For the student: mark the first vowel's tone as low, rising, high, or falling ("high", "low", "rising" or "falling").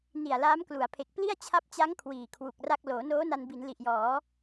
low